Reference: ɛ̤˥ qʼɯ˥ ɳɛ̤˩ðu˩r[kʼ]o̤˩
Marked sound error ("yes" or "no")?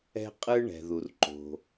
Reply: yes